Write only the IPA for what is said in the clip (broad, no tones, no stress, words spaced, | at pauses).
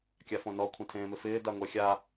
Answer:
kʲafõnɔ kʷʰẽtʰẽːmɪfɪː daŋʷɛxʲa